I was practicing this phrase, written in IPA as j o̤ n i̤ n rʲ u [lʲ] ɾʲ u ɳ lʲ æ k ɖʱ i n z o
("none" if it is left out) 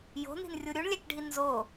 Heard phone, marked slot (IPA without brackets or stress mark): none